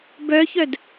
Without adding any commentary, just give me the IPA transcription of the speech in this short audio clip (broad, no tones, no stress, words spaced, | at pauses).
bœçœd